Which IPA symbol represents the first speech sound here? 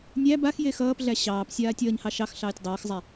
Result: nʲ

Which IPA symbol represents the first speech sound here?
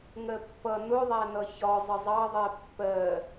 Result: ŋ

